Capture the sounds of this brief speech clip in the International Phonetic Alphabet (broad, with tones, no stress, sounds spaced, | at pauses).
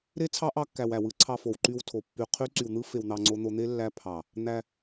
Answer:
ɾ e˦ t͡sʰ ɑ˦ ʔ ɑ˦ kː æ˧ w æ˨ w ɯ˧ ǀʰ ɑ˧ f o˨ w ǃ y˧ w tʰ o˨ pː y˧ qʰ y˦ ǀ y˧ w n̪ ɯ˦ f e˧ w n̪ ɑ˧ ŋ͡ǀ o˦ n̪ o˦ n̪ e˦ lː æ˦ pʰ ɑ˨ | n̪ æ˧